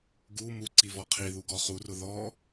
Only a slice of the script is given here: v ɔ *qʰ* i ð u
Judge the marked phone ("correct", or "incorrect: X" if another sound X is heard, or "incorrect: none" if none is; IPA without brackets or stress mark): correct